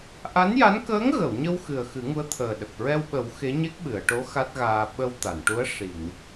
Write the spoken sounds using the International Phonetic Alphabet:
ʔ a˧˥ n j a˧˥ n k əː˧˥ ŋ ɣ ə˨˩˨ w ɲ ə˧ w x ɨ˨˩ ə̯ x ɨ˨˩˦ ŋ u˧˥ ə̯ t̪ʰ əː˨˩ ɗ ə˨˩ k̚ ɹ ɛ˧ w ɓ ə˨˩˦ w x e˧˥ ɲ e˦˥ k̚ ɓ ɨ˨˩˨ ə̯ ʈ o˧˥ x a˦˥ t̚ ɣ aː˧ ɓ ə˧ w t̪ a˨˩˨ n ʈ u˧˥ ə̯ ʂ i˨˩˨ ŋ

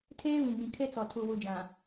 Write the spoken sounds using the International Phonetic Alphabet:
tʰ eː˦ β ĩ˨ ɡ͡b ĩ˨ kʰ e˦ t͡s ɔ˨ tʰ u˨ w u˨ d͡ʒ ã˨

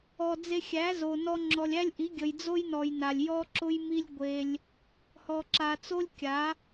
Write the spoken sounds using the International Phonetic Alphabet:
ɔ˨ d͡z e˧ xʲ æ˨˦ z o˨ n ɔ˧ ŋ͡ǁ ɔ˨ lʲ æ˦ lʲ ʔ i˨˦ ɡʲ ə˨ j d͡z o˦ j n ɔ˨ j n a˨ lʲ j ɔ˦ ǁ ʊ˦ j m i˦ lʲ ɡʷ e˧ lʲ | h ɔ˧ ǁ a˧ t͡s o˦ lʲ kʲ a˨˦

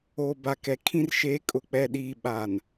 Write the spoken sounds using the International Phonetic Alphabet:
o˨ b a˨ k ɛ˨ kʰ ĩ˦ r ʃ eː˨˦ kʼ ʊ˨ k͡p ɛ˨ ɗ iː˨ ɓ aː˨ n

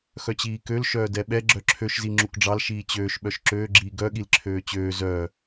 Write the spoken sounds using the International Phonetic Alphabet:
x œ t͡ɕ iː k ø l ʃ œː d ɛ ɓ ɛ ɡ͡ǁ œ ǁʰ ø ʃ z i ŋ͡ǁ u k ɖ͡ʐ ɑ l ʃ iː t͡ɕ øː ʃ ɓ œ ʃ ǁ øː ɡ͡ǁ iː ɡ œ ɠ i l ǁʰ øː t͡ɕ øː z œː

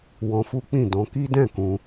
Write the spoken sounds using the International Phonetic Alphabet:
w ɔ̃˧ f u˦ k͡p ĩ˦˨ d ɔ̃˧ k i˦ d ɛ̃˦˨ k ũ˧

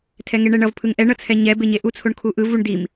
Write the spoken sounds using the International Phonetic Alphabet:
tʰ ɛ ŋ e ɳ ɛ ɳ ʌ v pʰ ɯ ŋ ʔ ɛ ɳ ʌ t͡sʰ ɛ ɲ ɛ b e ɲ e ʔ u t͡sʰ o ɳ kʰ u ʔ ɯ v u ɳ d i m

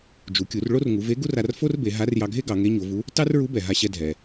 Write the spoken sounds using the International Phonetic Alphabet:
d͡ʒ u˩˧ kʲ u˩˧ r ɭ o˥ r ŋ u˩˧ v e˧˥ ɡ u˥ r a˧ r f o˥ r b e˩˧ ɦ a˧˥ r j ɑ˧ ɡʱ e˥ ɡ ɑ˩˧ ŋ e˧˥ ɲ o˩˧ v u˧˥ | t ɑ˥ r ɹ u˧˥ b ɛ˩ ɦ a˧ ɕ ɛ˧ dʱ ɛ˩

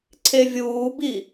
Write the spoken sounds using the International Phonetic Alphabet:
ǀʰ e vʲ uː b i

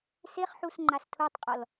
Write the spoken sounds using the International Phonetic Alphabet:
s e χ ħ u s ŋ͡ǃ a s tʰ u tˤ qʼ ɔ l

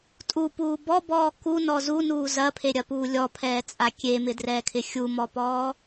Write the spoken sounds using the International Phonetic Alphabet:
tʼ u p uː b ɔ b ɔː k u n ɔ z u n uː z ɐ pʰ e ɾʲ ɐ p uː lʲ ɔ pʰ ɛː t͡sʼ a kʲ e m ɪ d r ɛː kʰ ɪ xʲ u m ɔ p ɔː

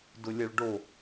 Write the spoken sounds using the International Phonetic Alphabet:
d ʊ lʲ ɐ ɭ ɖ o

